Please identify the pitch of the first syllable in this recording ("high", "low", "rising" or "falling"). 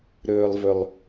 low